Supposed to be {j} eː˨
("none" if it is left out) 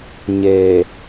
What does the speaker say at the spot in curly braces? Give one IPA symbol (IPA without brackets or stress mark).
ɲ